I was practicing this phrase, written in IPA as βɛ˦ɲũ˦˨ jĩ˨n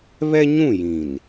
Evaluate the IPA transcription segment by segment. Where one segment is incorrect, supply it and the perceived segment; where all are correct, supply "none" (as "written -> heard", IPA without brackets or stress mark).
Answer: none